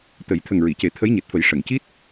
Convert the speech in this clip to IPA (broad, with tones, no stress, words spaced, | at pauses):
t̪ə˨˩˦j t̪ʰə˨˩ŋɹi˨˩˨ce˨˩˦ t̪ʰə˧˥jɲe˨˩t̚fə˨˩˦j ʂə˨˩˨ŋci˦˥t̚